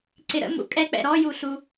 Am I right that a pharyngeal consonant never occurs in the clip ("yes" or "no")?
yes